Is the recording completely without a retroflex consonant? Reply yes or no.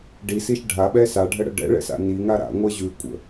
no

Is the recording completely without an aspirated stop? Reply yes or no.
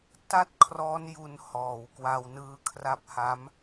no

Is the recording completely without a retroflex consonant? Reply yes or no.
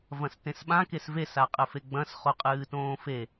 yes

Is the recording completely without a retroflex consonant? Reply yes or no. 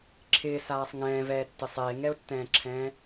yes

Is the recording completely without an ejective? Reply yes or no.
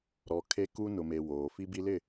yes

